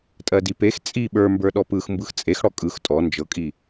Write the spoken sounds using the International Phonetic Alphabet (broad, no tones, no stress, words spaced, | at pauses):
tʼɜdipex t͡sʼi ɓə˞mbə˞ ɗɔpɯx mbɯxt͡sʼex ɽɔkʼɯx tʼɔ nd͡ʒɤkʼi